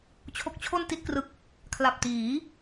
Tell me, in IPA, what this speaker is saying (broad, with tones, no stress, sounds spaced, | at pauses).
t͡ɕʰ o˦˥ k̚ t͡ɕʰ o˥˩ n t i˥˩ t̚ k r ɯ˦˥ k̚ | kʰ l a˨˩ p̚ t iː˩˦